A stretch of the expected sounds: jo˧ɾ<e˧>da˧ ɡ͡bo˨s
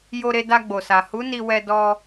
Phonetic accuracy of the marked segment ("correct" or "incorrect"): correct